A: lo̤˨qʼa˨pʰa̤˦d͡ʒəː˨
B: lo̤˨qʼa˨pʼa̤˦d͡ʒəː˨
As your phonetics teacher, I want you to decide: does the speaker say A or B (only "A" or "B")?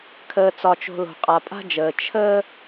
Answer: B